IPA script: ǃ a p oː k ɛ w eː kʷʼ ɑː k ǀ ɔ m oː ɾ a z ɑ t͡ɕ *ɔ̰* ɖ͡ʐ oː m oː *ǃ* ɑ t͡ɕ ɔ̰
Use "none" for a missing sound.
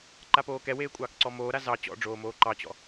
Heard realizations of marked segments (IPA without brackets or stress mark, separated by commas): ɔ̰, ǃ